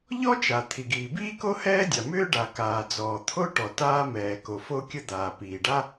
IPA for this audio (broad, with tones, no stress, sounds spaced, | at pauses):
ʎ ɔ˥ t͡ʃ a˩ t̪ʰ i˩ ɡ iː˩ b iː˥ k o˥ h ɛː˥ dʲ a˩ m ʏː˥ ɖ a˩ k aː˩ d͡z ɔː˩ t̪ʰ o˥ ʈ ɔ˩ t aː˥ m ɛː˩ k o˩ f o˥ kʲ ə˥ d̪ aː˩ p iː˩ ɖ a˥